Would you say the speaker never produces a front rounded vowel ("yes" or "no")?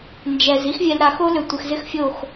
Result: no